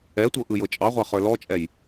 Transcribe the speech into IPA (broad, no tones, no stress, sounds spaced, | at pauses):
ɛ tʷ ɤ ʔ ɯ j ɤ t͡ʃʼ ɑ ʁʷ ɑ χ ə˞ l ɔ t͡ʃʼ ɛ j